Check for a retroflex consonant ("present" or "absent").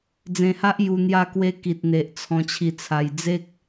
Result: absent